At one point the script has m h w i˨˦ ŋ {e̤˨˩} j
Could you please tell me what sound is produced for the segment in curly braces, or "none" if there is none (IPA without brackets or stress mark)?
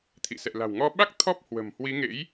ḛ˧˥